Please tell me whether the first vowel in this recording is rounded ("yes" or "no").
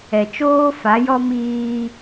no